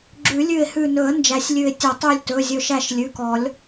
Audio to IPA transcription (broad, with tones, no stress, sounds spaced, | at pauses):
ɡ͡ǁ ʉ˨˩˦ lʲ ʉ˧˩ ɪ̯ h ʉ˧˩ n ɵ˨˩˦ ə̯ n d͡ʒ æ˨˩˦ sʲ lʲ ʉ˧˩ ɪ̯ tʲ ɵ˨˩˦ tˤ ʉ˧˩ lʲ t ɵ˩˧˩ zʲ ɵ˧˩ ʃ æ˧˩ ʃ lʲ ʉ˩˧˩ k ɔ˨˩˦ lʲ